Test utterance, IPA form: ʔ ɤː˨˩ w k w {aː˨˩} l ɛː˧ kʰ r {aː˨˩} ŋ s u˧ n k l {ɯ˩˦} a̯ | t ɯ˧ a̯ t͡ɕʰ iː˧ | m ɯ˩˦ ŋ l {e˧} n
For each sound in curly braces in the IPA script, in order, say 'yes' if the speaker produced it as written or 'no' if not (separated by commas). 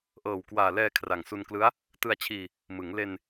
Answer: yes, no, no, yes